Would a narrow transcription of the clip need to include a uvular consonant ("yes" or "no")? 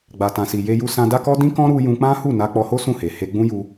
no